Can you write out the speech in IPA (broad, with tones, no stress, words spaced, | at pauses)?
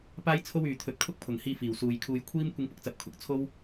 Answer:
paː˥jt͡sʰo˥wyː˨ t̪ʰɵ˨˥t̚kʰʊ˥k̚ pʰʊ˨˩ŋhiː˧ fiː˨˩wsuː˨jkʰuː˧j kʷʰiː˥m kʷɪ˧ŋpʊ˧k̚t͡sɐ˨˥p̚ kʰʊ˨k̚ t͡sʰo˥w